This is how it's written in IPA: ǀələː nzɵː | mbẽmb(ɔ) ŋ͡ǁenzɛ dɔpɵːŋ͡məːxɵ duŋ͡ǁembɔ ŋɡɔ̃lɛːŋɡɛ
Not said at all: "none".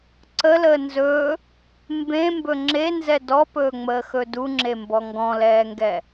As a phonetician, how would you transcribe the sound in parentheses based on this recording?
ɵ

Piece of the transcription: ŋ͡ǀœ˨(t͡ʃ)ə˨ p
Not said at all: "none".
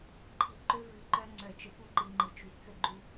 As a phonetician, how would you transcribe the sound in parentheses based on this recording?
t͡ʃ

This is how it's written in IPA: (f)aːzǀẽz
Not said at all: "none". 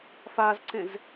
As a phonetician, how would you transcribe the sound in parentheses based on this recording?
f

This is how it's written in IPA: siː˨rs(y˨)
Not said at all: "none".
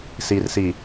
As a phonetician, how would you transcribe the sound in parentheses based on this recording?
i˨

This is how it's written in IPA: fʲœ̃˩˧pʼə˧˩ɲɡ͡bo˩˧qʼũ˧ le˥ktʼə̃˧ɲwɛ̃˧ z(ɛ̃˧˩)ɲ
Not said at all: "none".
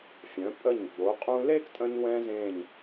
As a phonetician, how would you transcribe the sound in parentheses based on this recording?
ẽ˧˩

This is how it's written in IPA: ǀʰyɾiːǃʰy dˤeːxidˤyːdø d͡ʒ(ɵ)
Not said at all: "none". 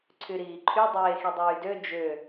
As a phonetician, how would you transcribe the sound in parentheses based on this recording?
ø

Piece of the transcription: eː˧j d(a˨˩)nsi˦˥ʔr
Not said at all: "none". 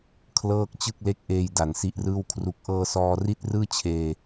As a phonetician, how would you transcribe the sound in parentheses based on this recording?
a˨˩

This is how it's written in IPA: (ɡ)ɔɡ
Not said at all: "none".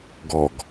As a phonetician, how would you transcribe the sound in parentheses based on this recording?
ɡ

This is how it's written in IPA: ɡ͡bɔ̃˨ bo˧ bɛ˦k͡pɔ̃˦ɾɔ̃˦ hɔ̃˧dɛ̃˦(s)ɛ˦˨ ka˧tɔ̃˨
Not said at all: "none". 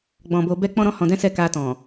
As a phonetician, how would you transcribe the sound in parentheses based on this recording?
s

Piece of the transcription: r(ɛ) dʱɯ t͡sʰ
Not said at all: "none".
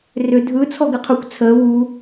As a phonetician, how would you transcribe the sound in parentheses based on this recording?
ʏ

